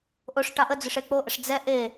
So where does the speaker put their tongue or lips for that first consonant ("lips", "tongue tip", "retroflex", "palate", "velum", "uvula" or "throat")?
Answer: throat